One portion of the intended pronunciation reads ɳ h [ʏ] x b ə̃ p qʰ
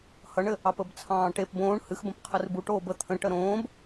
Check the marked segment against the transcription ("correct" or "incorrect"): incorrect